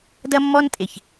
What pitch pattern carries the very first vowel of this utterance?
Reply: high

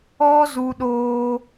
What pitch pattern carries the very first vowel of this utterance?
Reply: high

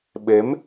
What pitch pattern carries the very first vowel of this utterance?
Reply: rising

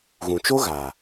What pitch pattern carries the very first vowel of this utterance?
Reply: low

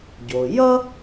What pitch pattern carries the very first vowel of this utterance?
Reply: low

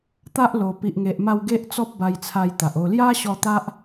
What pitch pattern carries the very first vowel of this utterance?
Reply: high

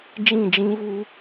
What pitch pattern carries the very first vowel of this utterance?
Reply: falling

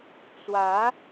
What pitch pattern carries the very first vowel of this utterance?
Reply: rising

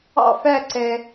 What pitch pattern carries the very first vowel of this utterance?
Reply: falling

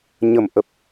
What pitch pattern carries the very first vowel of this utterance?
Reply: low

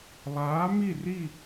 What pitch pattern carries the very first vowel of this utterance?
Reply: rising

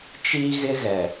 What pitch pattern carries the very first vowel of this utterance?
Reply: high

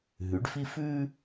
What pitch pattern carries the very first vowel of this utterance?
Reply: rising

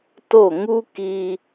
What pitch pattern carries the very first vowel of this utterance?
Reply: falling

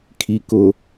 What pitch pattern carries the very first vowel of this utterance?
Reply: low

